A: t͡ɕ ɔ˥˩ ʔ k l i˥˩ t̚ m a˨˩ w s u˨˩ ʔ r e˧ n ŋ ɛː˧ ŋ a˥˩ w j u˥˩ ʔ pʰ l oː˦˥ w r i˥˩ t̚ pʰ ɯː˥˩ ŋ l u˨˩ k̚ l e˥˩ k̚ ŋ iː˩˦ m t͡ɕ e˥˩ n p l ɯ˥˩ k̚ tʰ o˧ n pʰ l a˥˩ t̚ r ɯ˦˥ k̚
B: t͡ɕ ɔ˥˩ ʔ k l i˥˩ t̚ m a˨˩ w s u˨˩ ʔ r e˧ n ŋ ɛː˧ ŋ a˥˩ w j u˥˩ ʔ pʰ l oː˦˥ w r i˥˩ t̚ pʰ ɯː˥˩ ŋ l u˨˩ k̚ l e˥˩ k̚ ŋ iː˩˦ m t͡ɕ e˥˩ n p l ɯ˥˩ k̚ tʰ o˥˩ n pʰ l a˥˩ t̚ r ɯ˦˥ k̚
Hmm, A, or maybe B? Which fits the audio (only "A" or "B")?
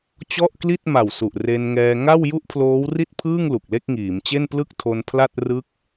A